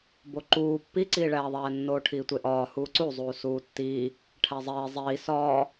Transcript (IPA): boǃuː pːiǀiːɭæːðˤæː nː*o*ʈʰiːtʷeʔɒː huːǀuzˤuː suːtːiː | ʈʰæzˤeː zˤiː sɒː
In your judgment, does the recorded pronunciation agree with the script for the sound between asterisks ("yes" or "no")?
no